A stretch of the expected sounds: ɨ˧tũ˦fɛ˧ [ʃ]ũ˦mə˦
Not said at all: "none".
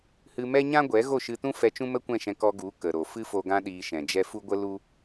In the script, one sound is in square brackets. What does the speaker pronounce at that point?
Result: t͡ʃ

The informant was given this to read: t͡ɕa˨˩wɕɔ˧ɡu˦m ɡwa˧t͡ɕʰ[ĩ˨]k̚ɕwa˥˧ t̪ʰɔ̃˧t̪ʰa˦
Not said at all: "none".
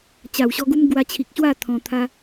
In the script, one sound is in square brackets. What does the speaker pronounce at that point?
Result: i˨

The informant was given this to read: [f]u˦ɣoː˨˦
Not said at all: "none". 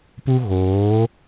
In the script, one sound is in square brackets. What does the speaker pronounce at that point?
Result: p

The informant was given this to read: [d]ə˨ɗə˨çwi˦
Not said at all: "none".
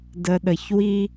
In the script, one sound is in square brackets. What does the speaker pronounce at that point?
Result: d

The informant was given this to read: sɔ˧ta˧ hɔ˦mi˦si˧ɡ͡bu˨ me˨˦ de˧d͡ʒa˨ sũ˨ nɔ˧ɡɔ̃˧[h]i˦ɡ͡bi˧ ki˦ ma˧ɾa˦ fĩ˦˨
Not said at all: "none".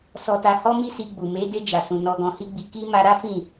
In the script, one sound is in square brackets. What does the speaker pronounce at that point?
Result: h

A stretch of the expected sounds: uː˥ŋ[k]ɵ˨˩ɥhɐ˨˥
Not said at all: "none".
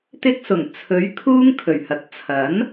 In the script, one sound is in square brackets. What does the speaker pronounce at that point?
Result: kʰ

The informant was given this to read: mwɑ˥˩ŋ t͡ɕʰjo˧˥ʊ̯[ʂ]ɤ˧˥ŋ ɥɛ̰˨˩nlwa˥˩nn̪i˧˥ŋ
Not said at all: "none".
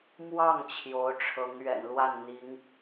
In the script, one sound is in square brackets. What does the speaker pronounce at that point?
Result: ʈ͡ʂʰ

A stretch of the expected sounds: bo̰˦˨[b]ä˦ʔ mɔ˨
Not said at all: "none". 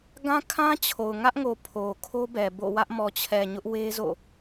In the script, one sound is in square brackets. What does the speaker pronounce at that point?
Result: w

